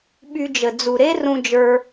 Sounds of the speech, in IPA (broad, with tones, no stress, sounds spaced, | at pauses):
ɓ y˧ d͡ʒ ə˨ d͡z u˨ ɾ e˦ r ũ˧ d͡ʒ ə˞˧